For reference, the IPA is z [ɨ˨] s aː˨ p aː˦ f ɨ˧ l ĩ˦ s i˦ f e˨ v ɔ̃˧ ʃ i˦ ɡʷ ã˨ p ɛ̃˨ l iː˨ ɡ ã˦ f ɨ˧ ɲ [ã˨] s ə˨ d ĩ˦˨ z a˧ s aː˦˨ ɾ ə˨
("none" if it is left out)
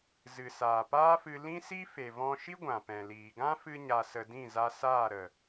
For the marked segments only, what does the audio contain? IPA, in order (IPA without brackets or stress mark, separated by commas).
ɨ˨, a˨